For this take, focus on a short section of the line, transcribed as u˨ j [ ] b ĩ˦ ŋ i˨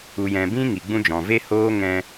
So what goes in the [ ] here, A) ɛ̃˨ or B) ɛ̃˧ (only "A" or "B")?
A